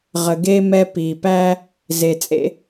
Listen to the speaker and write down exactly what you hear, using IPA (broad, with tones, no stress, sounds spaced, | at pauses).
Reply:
ʁ ə˨ ɡ eː˥ m ɛ˦ p iː˨ p æː˥ | z e˨ t͡sʼ ḛ˥